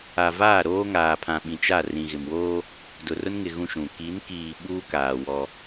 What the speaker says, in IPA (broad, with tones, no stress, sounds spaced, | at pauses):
a˨ v aː˦˨ ɾ oː˦ ŋ aː˨ pʰ ã˨ ɓ ĩ˨ t͡ʃ a˦˨ r ĩ˨ ɣ ɪ˨ m w oː˦ | d ʊ˨ r ʊ˦ n ŋ ɪ˨ ɣ ũ˦ ʃ ũ˨ k i˨˦ n k iː˨ ɓ uː˦ k aː˨ w ɔ˦